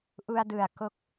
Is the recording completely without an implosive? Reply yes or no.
yes